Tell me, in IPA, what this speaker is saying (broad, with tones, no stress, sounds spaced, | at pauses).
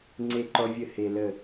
ŋ͡ǀ e˦ ǃ ɔ˦ vʲ ə˦˨ h e˧ l ə˦˨